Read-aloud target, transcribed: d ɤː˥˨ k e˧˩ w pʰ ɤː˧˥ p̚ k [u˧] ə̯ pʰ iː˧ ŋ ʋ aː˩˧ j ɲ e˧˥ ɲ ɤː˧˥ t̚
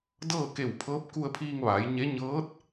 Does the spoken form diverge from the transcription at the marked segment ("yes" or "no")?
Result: no